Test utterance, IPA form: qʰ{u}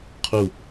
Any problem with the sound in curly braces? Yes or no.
no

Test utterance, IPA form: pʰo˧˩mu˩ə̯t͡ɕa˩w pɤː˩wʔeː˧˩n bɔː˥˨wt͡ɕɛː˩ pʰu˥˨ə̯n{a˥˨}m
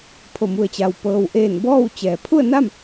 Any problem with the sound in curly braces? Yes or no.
no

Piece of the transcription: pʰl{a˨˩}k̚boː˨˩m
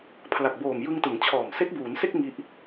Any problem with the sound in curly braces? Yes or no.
no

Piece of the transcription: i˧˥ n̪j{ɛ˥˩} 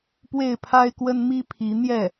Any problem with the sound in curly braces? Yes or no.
no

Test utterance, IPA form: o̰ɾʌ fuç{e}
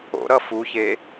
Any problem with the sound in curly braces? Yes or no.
no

